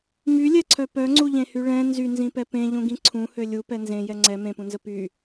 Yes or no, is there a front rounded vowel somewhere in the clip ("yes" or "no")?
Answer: yes